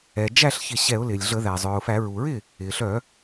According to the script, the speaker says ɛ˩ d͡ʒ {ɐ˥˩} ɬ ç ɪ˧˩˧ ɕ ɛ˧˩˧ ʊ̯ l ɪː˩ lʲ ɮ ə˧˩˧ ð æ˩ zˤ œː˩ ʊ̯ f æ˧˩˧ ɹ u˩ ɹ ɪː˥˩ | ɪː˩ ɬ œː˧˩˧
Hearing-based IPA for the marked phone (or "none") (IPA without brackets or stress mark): æ˥˩